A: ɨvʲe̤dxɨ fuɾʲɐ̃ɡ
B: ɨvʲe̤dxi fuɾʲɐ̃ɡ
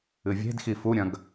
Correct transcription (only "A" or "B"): B